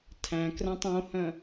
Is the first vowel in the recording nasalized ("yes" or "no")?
yes